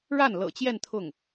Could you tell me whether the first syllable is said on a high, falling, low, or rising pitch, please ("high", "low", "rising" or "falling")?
falling